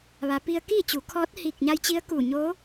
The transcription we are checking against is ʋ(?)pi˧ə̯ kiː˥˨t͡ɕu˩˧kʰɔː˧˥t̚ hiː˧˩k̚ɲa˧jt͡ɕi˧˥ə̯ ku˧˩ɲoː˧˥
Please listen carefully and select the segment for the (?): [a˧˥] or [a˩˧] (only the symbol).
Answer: a˩˧